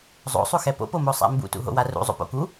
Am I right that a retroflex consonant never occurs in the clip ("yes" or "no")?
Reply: yes